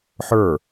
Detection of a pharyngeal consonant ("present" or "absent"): present